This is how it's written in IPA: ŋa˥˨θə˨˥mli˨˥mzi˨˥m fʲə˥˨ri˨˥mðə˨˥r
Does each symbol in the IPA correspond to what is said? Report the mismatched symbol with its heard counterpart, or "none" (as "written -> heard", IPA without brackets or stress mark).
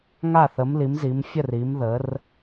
none